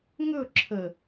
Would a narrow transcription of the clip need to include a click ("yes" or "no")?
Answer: yes